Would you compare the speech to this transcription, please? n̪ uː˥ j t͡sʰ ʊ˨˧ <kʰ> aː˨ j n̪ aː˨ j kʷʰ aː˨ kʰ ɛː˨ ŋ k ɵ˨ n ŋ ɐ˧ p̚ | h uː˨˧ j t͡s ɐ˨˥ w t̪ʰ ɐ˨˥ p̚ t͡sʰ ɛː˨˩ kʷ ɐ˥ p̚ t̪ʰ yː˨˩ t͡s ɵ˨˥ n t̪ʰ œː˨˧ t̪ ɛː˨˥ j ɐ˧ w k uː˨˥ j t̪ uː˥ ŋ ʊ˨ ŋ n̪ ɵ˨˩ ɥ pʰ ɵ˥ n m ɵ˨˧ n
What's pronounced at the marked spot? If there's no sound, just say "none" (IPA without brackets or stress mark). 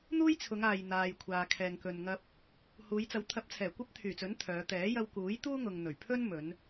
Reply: ŋ